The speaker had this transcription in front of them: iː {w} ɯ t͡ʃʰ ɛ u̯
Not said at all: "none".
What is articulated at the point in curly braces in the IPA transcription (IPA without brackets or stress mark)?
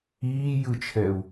j